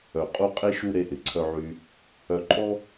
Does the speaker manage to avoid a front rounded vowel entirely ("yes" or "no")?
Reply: no